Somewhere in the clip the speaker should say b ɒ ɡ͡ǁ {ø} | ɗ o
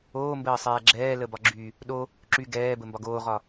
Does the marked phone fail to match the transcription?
yes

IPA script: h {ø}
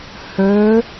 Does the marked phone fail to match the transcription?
no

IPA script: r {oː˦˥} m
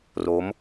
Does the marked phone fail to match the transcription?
yes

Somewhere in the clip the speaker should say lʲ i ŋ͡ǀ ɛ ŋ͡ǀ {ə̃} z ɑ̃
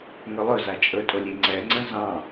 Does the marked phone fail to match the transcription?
no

